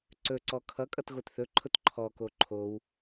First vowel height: mid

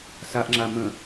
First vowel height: low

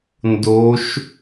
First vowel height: mid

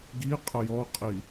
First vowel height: high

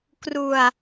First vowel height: high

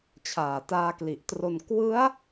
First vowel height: low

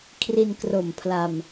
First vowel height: high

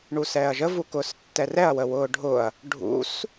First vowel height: high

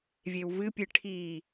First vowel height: mid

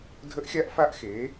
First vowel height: mid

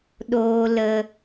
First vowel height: mid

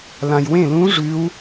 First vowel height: low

